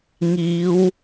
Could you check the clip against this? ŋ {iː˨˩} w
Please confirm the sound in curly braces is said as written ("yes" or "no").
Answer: no